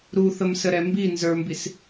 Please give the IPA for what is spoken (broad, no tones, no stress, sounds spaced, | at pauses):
ɾ u θ ə m s ə ɾ ɛ m b i n z ə˞ m b i s